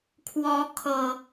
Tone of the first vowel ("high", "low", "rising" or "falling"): rising